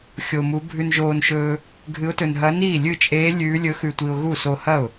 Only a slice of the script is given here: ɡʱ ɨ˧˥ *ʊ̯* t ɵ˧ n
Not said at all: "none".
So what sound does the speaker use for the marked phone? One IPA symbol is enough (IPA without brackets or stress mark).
ʊ̯